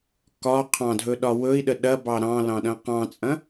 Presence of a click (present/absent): absent